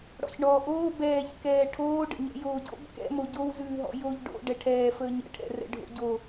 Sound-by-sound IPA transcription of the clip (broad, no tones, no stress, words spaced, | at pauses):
ɽɔ̰çɳɔːʔoː bɛːçkɛː ʈʰoːɖə̰ɲɛ̰ joːɟo̰b kɛ̰mo ɟowzʉːɦɔ̰ joʎ ɖo̰ ɖɛʈʰɛː fəːɲə̰ʈʰɛ̰rɛ̰ ɖʱo̰ɟo